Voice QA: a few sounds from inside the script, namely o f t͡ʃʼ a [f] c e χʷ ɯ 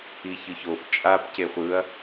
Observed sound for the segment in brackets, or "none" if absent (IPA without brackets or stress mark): p